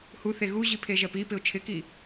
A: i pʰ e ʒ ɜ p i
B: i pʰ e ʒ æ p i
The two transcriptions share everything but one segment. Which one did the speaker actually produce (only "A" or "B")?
A